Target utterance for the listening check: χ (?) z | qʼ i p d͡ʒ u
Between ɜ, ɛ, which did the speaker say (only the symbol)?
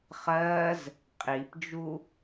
ɜ